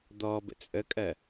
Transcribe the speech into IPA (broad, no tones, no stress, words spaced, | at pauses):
d̪ɔ bə̰t͡sʼəkʼɜ